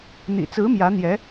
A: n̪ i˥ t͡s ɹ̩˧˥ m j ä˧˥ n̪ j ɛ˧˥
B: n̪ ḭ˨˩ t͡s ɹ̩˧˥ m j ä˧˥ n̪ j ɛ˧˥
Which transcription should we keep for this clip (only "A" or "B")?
B